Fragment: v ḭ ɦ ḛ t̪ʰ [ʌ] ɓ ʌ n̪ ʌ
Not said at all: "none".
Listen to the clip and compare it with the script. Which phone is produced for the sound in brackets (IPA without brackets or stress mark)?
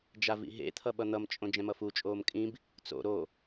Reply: ʌ